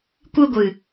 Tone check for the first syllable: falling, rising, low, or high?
high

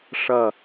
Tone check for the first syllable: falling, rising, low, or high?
falling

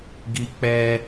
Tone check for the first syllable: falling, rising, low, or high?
high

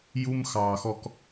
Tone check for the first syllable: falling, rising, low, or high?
high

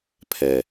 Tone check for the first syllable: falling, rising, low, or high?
low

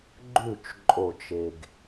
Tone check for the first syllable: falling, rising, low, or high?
falling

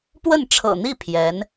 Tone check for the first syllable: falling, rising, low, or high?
falling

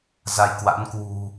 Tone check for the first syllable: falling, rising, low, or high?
rising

